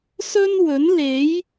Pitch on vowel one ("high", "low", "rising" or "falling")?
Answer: high